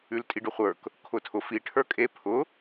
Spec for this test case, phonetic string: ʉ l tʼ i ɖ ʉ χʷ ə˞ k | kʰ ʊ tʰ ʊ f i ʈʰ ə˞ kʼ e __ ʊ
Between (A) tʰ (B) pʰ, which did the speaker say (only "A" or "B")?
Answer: B